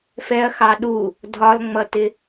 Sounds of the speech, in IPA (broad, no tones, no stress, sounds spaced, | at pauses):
f ɛ ɐ̯ x ɑ ɗ u | dʱ ɒ l ŋ͡m ʌ t ɪ